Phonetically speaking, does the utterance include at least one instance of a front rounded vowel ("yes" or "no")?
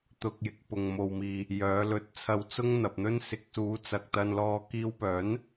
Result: yes